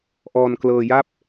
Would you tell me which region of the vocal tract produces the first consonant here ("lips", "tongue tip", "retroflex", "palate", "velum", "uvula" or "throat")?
throat